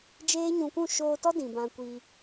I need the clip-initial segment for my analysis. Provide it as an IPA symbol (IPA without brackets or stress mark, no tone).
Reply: d͡ʒ